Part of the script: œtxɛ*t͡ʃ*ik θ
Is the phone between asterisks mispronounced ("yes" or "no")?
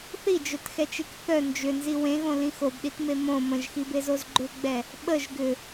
no